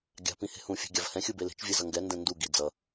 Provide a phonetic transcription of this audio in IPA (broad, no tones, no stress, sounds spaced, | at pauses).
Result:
ɡʲ a̤ p ĩ h e̤ h ũ fʲ e̤ ɡʲ a v h ɛ̃ xʲ ɯ b e l e̤ t͡ʃ vʲ e z ʌ ŋ ɡ ɛ n d ɛ̃ n d u ɡ i d͡z ʌ